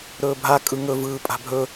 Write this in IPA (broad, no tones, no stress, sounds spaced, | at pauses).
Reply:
ɾ ɵː bʱ a kʼ ɯ ŋ ɵ v ɯː pʼ a̤ bʱ ɵ